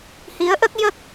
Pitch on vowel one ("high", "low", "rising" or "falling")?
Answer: rising